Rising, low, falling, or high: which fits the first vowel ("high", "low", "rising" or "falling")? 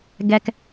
low